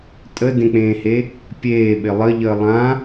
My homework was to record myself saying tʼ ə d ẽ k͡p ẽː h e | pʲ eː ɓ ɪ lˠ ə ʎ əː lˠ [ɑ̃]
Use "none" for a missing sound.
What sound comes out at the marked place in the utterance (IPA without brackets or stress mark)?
ã